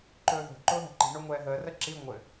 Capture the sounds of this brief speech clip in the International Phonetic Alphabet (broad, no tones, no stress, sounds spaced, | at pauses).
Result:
ǃ ɵː ð o̤ ǃ ʊː ɦ ɛ̤ ǃ i̤ ɳ o ŋʷ ɛː ɦ əː r ə ǁ i ŋʷ ɘ